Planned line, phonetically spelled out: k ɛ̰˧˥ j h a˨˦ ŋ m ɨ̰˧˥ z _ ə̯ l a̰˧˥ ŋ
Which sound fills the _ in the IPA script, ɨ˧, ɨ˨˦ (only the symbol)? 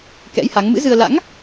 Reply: ɨ˧